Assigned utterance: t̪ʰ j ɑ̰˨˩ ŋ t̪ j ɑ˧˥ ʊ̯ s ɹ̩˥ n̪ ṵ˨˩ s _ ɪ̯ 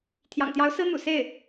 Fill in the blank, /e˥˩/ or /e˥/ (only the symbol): e˥˩